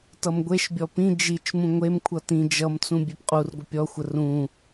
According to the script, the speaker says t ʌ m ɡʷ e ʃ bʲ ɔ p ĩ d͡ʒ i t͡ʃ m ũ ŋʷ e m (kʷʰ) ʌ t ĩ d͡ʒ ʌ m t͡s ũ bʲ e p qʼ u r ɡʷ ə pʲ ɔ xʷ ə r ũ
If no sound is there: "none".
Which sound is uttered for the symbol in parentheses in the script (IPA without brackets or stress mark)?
kʷʰ